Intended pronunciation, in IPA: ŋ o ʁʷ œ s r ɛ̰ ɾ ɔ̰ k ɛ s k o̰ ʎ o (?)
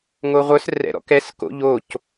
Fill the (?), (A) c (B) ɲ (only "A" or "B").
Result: A